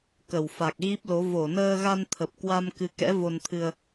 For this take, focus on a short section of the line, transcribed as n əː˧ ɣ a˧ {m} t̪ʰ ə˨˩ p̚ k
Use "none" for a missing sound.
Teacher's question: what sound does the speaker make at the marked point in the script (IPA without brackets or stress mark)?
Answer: n